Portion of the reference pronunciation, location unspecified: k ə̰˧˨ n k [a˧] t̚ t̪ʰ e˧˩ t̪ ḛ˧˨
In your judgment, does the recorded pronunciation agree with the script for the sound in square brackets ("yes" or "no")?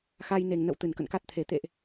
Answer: no